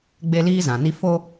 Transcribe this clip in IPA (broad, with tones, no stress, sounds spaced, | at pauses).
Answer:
ɡ͡b e˦ l iː˦ z ã˨ n i˦ f o˦